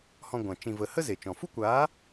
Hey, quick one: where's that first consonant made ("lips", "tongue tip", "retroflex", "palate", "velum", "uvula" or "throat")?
throat